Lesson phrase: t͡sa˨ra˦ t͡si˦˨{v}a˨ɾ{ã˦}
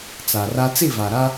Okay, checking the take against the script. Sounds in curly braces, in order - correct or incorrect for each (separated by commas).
correct, incorrect